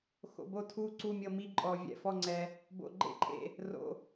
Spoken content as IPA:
x o̰˨ b o˦˨ tʰ u˦˨ ǀ u˦˨ mʲ ɤ˦˨ m i˦˨ ǃʼ ɔ˨ vʲ ɛ̰˨ f ɔ˦˨ ŋ͡ǀ ɛ˨ | b o̰˨ ɡ͡ǃ ḛ˦˨ ǃʼ ḛ˨ | r o̰˨

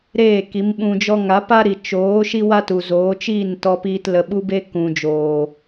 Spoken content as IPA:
ɾ eː˦˨ k i˨˦ m ɓ ũ˧ d͡ʒ ɔ˦ ŋ a˨˦ p a˦ ɾ i˨ t͡ʃ oː˨˦ ʃ i˦ w a˦ t u˨ z oː˨˦ t͡ʃ iː˦˨ n t ɔ˧ p iː˧ t l ə˧ ɓ u˦ b e˦ k ũ˨ d͡ʒ oː˨

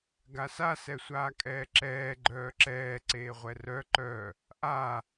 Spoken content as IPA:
ɡ a s a s ɛ sʷ aː kʼ ɛː ǁ ɛː ɡ͡ǃ œː ǁ ɛː ǀ eː ʁʷ ɛ r œ ǃ œː | ʔ aː

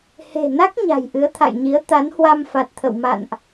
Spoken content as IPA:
h e̤˨˩ n a˦˥ k̚ ɲ a̤˨˩ j ʔ ɨ˨˦ ə̯ t̪ʰ a̰˧˨ j ɲ i˨˦ ə̯ t̪ a˨˦ n h w a˧ m f a˨˩ t̚ t̪ʰ ə̰˧˨ w m a̰˧˨ n ʔ

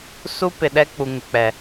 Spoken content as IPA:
s u˦ p ɪ˨ ɗ ɛ˦ k͡p u˨ ŋ ɪ˨ k͡p ɛ˨

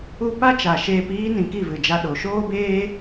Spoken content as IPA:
u˦ p a˦ t͡ʃ a˨ ʃ eː˧ p iː˦ n ĩ˧ k i˦˨ v ɨ˨ d͡ʒ a˧ ɗ o˨ ʃ oː˦ b eː˦

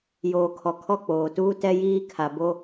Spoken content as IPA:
j oː˨ kʰ ɔ˨ kʰ ɔ˦˨ k͡p oː˨ t uː˦ t ɛ˦ j iː˦ kʰ a˨ b o˦

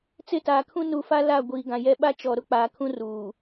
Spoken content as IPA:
t͡s ɪ˦˨ t aː˨ kʰ ũ˦ n u˨ f a˦ l a˦˨ ɡʷ iː˨ ɡ ã˨ j ɛ˦ ɓ a˦ t͡ʃ ɔ˨ ɾ ʊ˦ k͡p aː˨ kʰ ũ˦ r uː˨

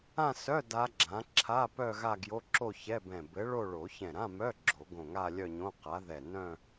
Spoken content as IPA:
ã˥˧ s œ˧˥˧ d a˦˥ ɡ͡ǁ ã˨˥ ǁʰ a˧˥˧ p œ˥˧ ɣ a˥˧ ɡ j o˧˥˧ ǁ o˥˧ ç ɛ˧˥˧ b ɛ̃˧˩ b ɘ˨˥ ɭ o˥˧ ɭ o˨˩˦ ç ɛ̃˧˩ ɾ ã˧˥˧ m œ˧˥˧ ɡ͡ǁ o˨˩˦ ɡ õ˧˩ ŋ a˥˧ lʲ œ˥˧ ɲ õ˧˥˧ q a˨˥ ð ɛ˧˩ n œ̃˥˧

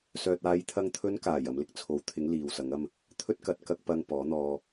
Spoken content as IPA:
s œː˨ t̚ aː˨˧ j t̪ʰ ɐ˧ ŋ t̪ʰ ɵ˨˧ n k aː˨˩ j ɐ˨˧ m l ɪ˧ k̚ t͡sʰ o˨˥ w t̪ʰ ɪ˨˥ ŋ l iː˨ w s ɐ˨˥ ŋ ɐ˥ m | t̪ʰ ɵ˥ t̚ k ɐ˨˥ t̚ k ɐ˧ k̚ p ɐ˧ ŋ p ɔː˨˥ n̪ ɔː˧

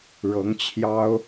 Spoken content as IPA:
ɻ ɤ˧˥ ŋ t͡ɕʰ j ɑ˥ ʊ̯

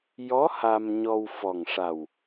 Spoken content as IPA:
j ɔ˧˥ h a˧ m ɲ ɔ˧ w f ɔ˨˩ ŋ ʂ a˨˩ w

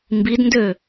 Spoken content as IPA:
m b i d n d ø

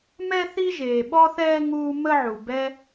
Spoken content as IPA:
m ɛ˥ θ i˥ ʒ eː˨ ɓ ɔ˥ θ ɛː˥ ŋ uː˦ m ə˥ ʕ u˨ b ɛ˦

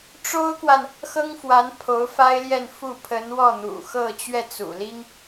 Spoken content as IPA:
ʈ͡ʂ o˥ ʊ̯ k w a˨ n | x ɤ˥ ŋ f w a˧˥ n pʰ o˧˥ ʊ̯ f a˥ ɪ̯ l j ɛ˥˧ n f u˥˩ pʰ ə˧˥ n w ɔ˥˩ n̪ ṵ˨˩ x ɤ˥˧ t͡ɕ ɥ ɛ˥˩ t͡s ṵ˨˩ l i˥ ŋ

